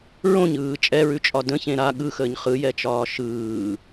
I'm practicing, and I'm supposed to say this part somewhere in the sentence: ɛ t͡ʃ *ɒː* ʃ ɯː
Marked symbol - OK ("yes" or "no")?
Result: yes